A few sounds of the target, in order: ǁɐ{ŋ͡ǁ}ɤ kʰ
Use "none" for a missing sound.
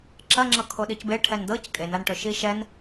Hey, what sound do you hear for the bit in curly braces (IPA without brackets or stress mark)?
ŋ͡ǁ